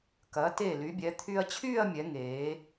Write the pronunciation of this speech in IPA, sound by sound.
kɐ˩˧te˧˩ ly˩˧bʲɛ˩˧t̪ʰy˧ɐ̯ t͡ɕʰyː˥˧ɐ̯mʲɛ˩˧ŋeː˩˧

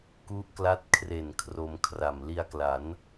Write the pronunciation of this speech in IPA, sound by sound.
ku˦˥ʔkla˦˥t̚kʰre˨˩n kʰro˧mkʰra˨˩m li˧a̯kla˩˦n

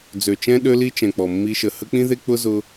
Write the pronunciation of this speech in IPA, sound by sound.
d͡zø˨t͡ʃɛ̃˦ ɗø˦li˦t͡ʃɛ̃˨k͡pɔ˨ mːi˧ʃə˨ hə˦k͡pĩ˦ðe˦ k͡pʊ˦zʊ˧

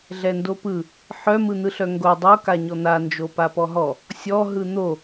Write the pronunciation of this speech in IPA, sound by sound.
ɮɛndopɯ | ħœ mɯn̪ɯɬœŋɡo dˤo kaɲɔn̪a nd͡ʒopapɔɦɔ | sʲɔ ɦɯn̪o

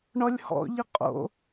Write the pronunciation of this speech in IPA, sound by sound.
ɳɔlʲhɔ̰ʎɪ qʼo̰

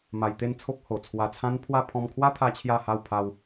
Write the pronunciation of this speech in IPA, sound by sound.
ma˧jt̪e˥˧nt͡sʰo˦k̚ ho˨˩t͡sʰwa˧t͡sʰã˦npʰwa˥˧ pʰɔ̃˧mkʰwa˦ t̪ʰa˦t͡ɕʰja˥˧ha˥˧wpʰa˦w

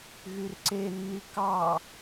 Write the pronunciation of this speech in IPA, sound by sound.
ɣyrǀenːi kɑ

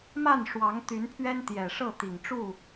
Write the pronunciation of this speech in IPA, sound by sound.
ma˥˨n ʂwɑ˨˦ŋ t̪y˨˦npʰɥɛ˦n t̪jɛ˨˩ ʂɤ˥˨t̪i˨˩ŋʈ͡ʂu˥˨

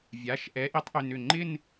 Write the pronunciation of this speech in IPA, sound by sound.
vʲa˩˧˩ʃʔɛ˨˥ ʔi˨˥tˤʔʏ˩˧˩nʏ˧˩ ŋ͡ǃɪ˥˧n

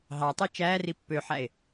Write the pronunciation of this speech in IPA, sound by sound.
ɦɑtˤi t͡ʃæːri pːøħæe̯

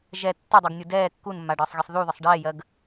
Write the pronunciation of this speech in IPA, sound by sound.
ʒɛ tːədˤiɡnʲu dɛː kːunmːaɖəːsˤɣisˤ ðuðəsˤ ɖɛːjɜɡ

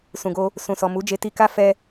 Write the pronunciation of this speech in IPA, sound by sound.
sũ˨ɡo˧ | sũ˨sɔ˨ mu˨˦d͡ʒe˧ti˧ka˦ fɛ˦

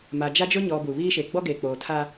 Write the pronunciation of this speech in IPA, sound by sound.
ma˨d͡ʒa˦d͡ʒʊ˦ ɲɔ˨ bu˨βiː˦ʃe˨ ɡ͡bɔ˦ɡeː˨k͡poː˨tʰa˦

